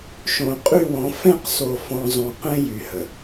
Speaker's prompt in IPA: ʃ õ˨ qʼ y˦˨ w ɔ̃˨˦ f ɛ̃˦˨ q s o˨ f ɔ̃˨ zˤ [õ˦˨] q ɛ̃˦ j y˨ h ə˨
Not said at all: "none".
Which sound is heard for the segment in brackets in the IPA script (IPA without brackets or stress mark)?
õ˨